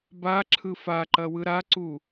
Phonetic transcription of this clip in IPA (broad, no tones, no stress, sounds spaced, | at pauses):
b a ǁʰ ɯ f a ǃ ɐ w ɯ ɾ a ǀ u